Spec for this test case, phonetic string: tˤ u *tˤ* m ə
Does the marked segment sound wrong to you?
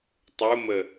yes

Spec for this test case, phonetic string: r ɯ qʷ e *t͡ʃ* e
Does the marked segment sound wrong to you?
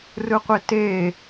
yes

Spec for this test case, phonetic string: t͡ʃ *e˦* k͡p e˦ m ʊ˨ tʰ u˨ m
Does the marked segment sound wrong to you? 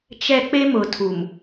yes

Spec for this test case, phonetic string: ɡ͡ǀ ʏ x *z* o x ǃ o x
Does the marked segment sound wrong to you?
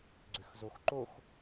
no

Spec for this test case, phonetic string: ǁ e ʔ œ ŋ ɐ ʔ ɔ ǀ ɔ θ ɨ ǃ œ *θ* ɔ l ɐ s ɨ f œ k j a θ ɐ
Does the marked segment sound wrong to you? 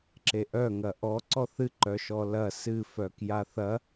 yes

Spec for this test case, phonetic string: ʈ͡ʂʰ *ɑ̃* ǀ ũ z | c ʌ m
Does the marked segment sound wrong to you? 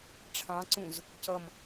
no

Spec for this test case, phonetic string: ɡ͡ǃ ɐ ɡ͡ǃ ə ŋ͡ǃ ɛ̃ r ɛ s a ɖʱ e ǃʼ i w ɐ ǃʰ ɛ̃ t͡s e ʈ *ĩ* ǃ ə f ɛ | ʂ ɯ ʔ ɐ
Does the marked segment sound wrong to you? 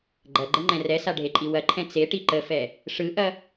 yes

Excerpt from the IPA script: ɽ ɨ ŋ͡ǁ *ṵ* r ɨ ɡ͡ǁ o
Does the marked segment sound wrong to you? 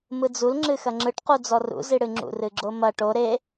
no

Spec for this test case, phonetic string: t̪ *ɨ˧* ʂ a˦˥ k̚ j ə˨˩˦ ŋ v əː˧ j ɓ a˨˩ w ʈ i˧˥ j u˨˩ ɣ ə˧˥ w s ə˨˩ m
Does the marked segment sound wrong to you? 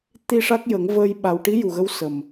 yes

